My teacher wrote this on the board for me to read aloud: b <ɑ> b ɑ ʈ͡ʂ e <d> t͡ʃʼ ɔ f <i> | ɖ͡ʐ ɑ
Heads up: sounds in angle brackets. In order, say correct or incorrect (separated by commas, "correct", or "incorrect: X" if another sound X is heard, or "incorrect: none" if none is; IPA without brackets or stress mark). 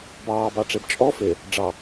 incorrect: ɑː, incorrect: b, incorrect: e